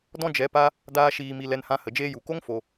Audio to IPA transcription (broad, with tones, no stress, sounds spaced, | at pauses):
d ɔ̃˦ d͡ʒ ɛ˨˦ p a˦ | d aː˦ ʃ iː˧ m i˧ l ɛ˧ n h ã˧ h ə˨ d͡ʒ eː˧ j u˨ k o˦ ŋ f o˧